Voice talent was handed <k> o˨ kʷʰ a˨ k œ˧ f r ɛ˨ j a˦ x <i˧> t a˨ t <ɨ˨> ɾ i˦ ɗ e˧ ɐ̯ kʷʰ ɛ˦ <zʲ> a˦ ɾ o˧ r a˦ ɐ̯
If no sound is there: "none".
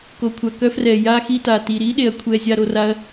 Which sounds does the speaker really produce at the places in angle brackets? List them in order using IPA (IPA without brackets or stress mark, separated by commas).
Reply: k, i˧, i˨, zʲ